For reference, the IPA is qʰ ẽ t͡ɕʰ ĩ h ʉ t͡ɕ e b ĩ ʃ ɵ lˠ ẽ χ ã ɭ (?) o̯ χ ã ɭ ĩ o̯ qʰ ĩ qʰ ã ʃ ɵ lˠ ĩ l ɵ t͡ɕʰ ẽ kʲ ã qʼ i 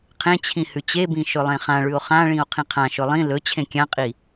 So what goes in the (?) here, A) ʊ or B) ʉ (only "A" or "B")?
B